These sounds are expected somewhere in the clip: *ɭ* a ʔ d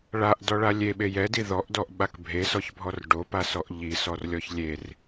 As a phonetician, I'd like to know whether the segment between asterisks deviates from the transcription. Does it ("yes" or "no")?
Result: no